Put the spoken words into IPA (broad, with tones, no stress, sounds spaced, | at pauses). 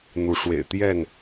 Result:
n̪ u˨˦ ʂ w ḛ˨˩ ɪ̯ t̪ j ɛ˥˨ n